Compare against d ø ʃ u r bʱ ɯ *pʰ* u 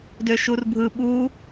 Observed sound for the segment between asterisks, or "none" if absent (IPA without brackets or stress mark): ɓ